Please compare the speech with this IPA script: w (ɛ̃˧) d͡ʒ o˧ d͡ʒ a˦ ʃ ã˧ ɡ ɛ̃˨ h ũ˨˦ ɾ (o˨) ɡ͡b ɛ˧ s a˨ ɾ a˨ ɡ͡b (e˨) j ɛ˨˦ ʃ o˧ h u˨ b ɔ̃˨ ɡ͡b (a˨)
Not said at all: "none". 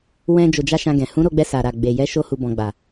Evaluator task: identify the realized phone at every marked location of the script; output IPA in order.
ɛ̃˧, o˧, e˨, a˨

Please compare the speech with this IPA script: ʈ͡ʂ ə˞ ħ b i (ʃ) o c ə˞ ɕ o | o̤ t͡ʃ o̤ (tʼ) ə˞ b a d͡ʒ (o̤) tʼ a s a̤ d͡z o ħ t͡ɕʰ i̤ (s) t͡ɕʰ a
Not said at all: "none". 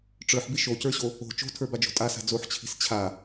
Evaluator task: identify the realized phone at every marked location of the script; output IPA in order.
ʃ, tʰ, o̤, s

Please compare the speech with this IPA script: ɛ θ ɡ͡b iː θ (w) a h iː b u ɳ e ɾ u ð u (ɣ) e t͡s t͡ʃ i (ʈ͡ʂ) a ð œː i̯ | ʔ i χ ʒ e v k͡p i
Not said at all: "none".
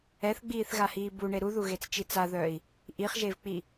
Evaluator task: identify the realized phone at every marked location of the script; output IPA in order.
ɣ, ɣ, t͡s

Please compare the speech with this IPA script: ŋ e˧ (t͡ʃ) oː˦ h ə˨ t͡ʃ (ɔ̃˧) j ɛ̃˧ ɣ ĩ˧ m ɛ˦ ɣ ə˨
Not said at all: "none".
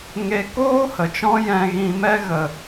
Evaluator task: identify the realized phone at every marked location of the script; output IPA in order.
k, ɔ̃˧

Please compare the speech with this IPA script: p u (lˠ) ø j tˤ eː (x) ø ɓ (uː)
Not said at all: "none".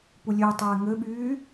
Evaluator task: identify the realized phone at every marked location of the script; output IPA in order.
lʲ, ŋ, yː

